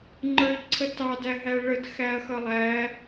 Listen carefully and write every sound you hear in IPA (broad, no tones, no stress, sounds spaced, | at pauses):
ŋ͡ǃ ə˞ ʎ ǀʰ ə t ɑ d æ ɦ æ ɭ ə d x æ ɐ̯ x ʌ lˠ æ